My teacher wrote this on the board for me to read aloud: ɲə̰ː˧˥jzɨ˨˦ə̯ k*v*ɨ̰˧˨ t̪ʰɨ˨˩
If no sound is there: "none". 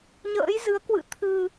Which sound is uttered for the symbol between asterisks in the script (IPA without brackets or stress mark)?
w